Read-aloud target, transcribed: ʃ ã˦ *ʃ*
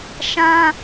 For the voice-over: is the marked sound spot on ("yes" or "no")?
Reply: no